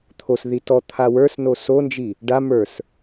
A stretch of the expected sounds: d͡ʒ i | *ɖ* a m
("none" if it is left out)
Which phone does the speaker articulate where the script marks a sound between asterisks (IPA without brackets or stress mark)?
ɖ